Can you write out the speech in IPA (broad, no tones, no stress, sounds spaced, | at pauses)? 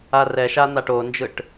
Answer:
a r ɛ ʃ a n̪ a ʈ o n d͡ʒ ɯ ʈ